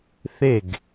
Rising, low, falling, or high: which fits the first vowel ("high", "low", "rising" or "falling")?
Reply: falling